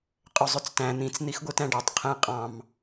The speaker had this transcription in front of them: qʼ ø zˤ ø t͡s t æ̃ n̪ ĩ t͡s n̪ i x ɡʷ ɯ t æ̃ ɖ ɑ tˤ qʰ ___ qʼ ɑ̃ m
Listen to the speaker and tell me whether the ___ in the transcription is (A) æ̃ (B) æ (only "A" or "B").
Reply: A